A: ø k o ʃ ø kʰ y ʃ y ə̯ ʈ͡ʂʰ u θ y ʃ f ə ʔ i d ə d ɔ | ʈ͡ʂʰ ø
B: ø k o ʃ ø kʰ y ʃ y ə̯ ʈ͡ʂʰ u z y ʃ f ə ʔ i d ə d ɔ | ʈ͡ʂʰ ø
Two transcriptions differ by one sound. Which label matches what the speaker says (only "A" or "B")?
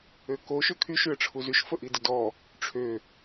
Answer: B